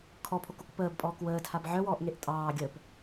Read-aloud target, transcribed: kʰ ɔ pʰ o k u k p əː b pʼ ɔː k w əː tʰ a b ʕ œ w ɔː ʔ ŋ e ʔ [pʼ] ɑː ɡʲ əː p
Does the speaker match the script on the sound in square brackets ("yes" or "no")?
no